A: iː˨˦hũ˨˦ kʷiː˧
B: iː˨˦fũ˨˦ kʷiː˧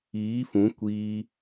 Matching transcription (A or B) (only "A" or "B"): B